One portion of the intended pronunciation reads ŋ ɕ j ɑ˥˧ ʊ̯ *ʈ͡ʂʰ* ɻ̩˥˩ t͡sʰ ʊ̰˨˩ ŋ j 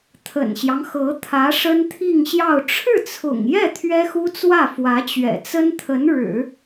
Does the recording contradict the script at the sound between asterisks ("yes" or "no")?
no